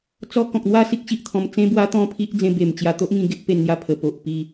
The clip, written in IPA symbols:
t͡sɔ˦ kɔ̃˨k̚n̪wa˥˧si˦k̚ɕi˨ʔ t̪ʰɔ̃˧mt͡sẽ˦bwa˦ t̪ɔ̃˥˧pʰi˦ʔ d͡zẽ˧be˨˩mt͡ɕja˧t̪o˦ʔ ŋĩ˧ɡe˦ʔpe˧nn̪ja˧ pʰə˨˩po˨ʔ pi˥˧

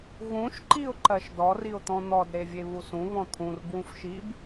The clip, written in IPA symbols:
ɣũʃǃiʊ̯ ǃɜʃdɔriʊ̯t̪ɔ̃ n̪ɔdɾevʲe βusũ βɔ̃t̪ʰũr bwũfʃib

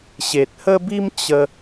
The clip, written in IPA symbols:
ɕe˨t̚hə˦bi˦m t͡ɕə˧

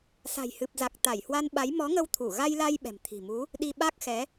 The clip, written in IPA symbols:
sa̤˨˩jhɨ˨˩p̚za˨˩k̚ t̪a˧˩jhwa˧nɓa˨˦j mɔ˨˦ ŋə˧w t̪ʰu˧˩ɣa˧jla˧j ɓɛ̤˨˩mt̪ʰi̤˨˩mu˨˦ | ɗi˧ɓa˦˥k̚xɛ˨˦

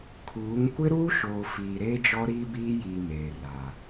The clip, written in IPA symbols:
kʰuː˨˦ŋ kʷɪ˦ɾuː˦ʃoː˨ fiː˨ɾeː˦d͡ʒɔ˦ ɾiː˦biː˦jiː˨ meː˨ra˨

